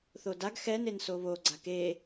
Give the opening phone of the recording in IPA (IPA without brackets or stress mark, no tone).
θ